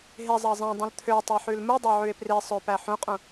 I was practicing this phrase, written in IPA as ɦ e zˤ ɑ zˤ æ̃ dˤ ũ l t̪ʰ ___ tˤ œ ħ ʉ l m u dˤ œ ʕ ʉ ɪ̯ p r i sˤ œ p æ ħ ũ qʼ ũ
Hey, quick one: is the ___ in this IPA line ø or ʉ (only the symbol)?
ø